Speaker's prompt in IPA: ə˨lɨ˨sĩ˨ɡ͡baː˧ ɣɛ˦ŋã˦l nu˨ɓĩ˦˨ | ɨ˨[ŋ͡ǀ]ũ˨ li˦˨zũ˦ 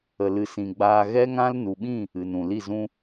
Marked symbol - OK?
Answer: no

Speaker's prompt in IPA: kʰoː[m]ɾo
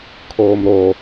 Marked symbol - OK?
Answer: yes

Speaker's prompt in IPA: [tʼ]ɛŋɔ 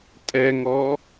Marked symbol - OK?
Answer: yes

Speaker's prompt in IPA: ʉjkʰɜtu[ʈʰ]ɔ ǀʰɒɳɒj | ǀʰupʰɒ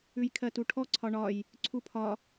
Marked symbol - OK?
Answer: yes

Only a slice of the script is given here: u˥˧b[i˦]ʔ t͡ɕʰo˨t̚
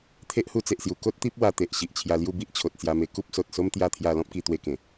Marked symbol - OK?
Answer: yes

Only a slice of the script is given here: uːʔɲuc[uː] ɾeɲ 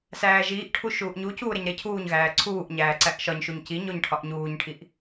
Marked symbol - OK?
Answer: yes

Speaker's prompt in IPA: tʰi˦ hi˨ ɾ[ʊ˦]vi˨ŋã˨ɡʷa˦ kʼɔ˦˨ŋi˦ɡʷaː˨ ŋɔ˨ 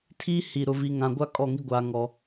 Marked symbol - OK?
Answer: no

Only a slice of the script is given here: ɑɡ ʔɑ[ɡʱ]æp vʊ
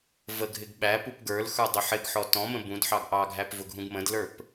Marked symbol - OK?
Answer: yes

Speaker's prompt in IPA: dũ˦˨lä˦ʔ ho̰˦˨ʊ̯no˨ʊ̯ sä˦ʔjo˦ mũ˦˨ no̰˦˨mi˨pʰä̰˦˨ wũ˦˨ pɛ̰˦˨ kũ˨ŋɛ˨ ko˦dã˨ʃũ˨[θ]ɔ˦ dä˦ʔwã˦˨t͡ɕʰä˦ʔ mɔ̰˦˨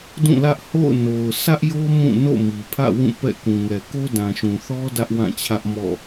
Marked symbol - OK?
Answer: yes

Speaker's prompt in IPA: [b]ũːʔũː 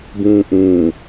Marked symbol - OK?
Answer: yes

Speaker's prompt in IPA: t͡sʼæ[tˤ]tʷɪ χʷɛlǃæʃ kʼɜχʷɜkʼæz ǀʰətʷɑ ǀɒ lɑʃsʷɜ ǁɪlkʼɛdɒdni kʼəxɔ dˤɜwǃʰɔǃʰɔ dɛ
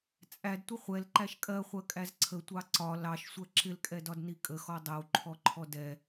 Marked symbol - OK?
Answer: no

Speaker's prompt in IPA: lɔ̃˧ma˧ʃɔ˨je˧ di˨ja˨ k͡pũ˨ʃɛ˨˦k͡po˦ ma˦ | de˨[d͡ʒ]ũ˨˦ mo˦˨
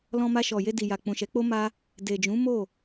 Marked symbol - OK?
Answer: yes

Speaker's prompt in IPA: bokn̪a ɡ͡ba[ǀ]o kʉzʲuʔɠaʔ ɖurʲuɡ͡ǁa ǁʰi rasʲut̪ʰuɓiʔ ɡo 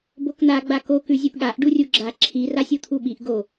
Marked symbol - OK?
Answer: no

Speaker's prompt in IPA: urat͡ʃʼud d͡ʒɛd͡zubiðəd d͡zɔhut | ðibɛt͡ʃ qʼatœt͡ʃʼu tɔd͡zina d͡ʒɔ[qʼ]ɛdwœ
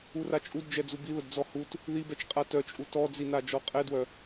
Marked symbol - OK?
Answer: yes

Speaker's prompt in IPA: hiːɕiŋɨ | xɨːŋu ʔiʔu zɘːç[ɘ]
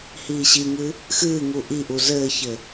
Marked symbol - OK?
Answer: yes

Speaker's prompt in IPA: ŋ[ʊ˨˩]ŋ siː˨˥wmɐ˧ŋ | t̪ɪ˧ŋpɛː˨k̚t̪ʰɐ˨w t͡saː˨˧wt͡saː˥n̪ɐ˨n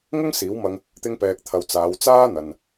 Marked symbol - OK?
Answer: no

